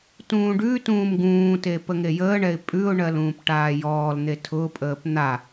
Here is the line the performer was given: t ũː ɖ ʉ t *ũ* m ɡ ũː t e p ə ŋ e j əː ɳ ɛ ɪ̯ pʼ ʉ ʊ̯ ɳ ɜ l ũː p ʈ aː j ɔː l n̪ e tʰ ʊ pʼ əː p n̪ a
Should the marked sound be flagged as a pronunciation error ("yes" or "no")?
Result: yes